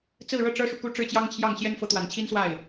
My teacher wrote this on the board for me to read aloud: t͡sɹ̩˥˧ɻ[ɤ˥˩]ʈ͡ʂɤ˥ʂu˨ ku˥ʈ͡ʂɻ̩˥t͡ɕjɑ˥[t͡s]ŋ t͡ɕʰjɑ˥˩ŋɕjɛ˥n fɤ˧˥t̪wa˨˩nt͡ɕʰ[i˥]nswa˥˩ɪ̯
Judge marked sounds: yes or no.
yes, no, yes

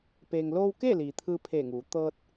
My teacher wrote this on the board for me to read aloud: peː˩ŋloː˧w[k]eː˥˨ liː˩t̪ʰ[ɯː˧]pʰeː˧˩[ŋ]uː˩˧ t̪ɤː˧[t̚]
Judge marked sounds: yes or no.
yes, yes, yes, yes

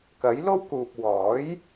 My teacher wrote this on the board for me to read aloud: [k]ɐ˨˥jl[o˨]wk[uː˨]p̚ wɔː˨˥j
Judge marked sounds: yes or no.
yes, no, yes

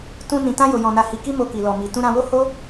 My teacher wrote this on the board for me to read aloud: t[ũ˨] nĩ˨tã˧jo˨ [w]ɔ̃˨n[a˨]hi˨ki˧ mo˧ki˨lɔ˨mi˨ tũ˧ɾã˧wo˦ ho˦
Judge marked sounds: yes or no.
no, no, yes

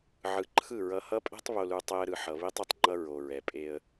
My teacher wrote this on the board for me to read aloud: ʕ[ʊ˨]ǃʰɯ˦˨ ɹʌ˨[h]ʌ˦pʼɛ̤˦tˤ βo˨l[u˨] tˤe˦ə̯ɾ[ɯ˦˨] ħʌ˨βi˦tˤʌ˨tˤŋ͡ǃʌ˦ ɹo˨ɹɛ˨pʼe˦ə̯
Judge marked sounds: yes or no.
no, yes, yes, no

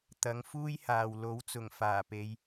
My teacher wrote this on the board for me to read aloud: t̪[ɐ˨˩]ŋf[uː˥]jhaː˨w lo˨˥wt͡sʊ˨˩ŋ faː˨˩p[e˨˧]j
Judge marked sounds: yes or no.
no, yes, yes

